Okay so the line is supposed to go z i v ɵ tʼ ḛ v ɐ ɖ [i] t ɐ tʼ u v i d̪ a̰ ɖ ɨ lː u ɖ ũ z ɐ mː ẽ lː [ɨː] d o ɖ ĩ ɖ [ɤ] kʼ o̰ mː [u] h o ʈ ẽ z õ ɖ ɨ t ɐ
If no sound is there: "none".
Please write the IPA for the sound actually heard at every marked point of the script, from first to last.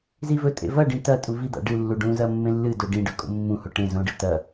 ĩ, ɨ, ɵ, ũ

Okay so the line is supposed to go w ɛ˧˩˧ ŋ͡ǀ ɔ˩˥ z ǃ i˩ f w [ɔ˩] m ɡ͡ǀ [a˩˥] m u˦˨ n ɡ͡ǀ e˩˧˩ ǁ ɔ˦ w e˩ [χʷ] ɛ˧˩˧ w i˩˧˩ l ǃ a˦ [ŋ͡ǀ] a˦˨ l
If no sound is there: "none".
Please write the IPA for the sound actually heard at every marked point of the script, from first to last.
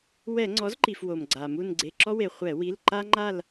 o˩, a˩, χʷ, ŋ͡ǃ

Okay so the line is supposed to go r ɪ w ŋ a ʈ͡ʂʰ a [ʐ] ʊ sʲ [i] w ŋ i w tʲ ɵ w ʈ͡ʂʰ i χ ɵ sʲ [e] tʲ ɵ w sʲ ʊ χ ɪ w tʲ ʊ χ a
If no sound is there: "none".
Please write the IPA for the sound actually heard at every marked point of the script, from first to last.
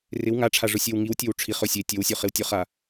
ʐ, e, e

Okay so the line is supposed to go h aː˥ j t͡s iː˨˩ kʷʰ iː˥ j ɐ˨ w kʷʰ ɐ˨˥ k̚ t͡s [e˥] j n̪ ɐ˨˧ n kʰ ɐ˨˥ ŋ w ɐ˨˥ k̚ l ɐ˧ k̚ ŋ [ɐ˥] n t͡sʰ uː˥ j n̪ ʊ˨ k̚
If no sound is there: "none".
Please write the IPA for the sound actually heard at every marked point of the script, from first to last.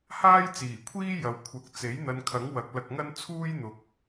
e˨˥, ɐ˥

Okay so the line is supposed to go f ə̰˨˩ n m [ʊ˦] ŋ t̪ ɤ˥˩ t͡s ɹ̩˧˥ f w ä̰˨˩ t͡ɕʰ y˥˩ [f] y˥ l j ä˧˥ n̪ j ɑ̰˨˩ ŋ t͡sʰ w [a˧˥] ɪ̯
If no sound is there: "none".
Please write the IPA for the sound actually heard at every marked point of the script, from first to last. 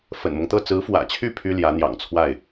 ʊ˦, pʰ, a˥˩

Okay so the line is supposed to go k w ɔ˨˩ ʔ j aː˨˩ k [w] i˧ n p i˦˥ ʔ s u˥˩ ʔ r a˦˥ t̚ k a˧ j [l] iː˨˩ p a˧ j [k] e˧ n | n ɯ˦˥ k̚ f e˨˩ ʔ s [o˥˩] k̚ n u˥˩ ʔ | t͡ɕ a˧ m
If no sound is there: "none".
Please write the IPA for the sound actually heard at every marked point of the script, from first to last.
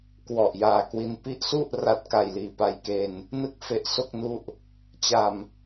w, l, k, o˥˩

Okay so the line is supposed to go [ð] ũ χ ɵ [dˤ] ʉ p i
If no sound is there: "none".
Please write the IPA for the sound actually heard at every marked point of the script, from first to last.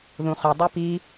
ð, dˤ

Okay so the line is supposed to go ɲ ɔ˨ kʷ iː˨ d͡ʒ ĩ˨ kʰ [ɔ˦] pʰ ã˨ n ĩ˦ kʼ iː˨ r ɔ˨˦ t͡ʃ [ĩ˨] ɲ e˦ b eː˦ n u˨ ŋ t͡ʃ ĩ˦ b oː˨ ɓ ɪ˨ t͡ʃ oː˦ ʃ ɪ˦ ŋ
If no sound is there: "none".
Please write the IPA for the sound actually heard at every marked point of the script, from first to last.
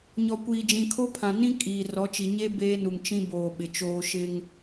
o˦, i˨

